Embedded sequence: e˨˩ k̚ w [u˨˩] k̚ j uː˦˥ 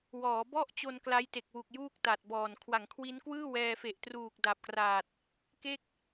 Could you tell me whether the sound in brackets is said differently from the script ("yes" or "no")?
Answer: no